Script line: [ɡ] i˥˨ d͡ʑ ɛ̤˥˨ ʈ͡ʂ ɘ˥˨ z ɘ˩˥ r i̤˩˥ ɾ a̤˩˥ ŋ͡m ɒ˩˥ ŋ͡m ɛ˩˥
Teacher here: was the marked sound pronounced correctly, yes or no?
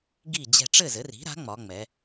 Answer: yes